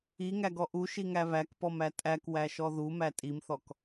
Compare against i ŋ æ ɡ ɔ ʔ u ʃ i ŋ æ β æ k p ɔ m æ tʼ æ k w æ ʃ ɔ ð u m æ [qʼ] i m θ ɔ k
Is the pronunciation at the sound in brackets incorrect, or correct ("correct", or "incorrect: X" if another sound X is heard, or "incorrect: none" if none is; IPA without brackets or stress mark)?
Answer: incorrect: tʼ